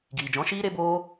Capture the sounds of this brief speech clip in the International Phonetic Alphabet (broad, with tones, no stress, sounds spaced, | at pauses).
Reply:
ɡ iː˨ d͡ʒ ɔ̃˨˦ ʃ iː˦ ɾ e˦ b oː˦